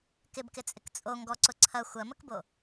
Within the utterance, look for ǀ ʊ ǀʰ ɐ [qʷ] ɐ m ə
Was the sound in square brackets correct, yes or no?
no